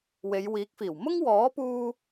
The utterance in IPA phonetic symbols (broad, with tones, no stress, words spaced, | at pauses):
we˨˧jwiː˨˥k̚fiː˨˩w mʊ˥ŋwɔː˨˥puː˧